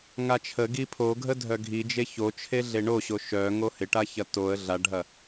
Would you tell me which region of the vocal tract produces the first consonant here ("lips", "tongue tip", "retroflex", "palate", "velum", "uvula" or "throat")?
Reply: velum